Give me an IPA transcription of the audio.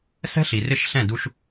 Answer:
sɛ̤˦ɬi˨rɪ˦˨ʃɬɛ̃˦˨ du˦ʃ

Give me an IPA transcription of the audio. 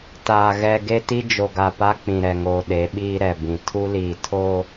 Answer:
taː˨ ɣɛ˨ ɡe˦ti˦ d͡ʒo˨ɡa˨ pa˦ k͡pĩ˨ɾɛ˨ŋoː˨ ɗe˨˦ɓiː˦ɾɛ˨ bĩ˨ tʰu˦liː˨ tʰo˦

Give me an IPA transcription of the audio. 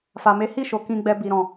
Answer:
fa˨me˨˦hi˦˨ʃo˨ kĩ˧ɡ͡bɛ˧ bi˨ɾɔ̃˨

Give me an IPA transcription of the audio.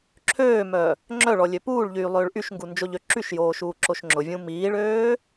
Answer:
ǁʰøːmœ | ŋ͡ǁœɭɔlʲø puːɭʎyːlˠøːɭ ʔyʃŋɡund͡ʒoʎø ǁyʃjoːʃuːǁoʃ ŋ͡ǁʊvʲũ miːɭøː

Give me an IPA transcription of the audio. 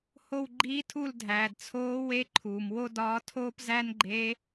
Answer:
ho˦˨wɡ͡ǃiː˧˥tʰu˦˨ldʱæː˩d t͡sʰoː˧˥we˧˥ ǃʰuː˩mwo˥dɒː˧˥tʰoː˥p zæ˥nɡ͡ǃe˧˥

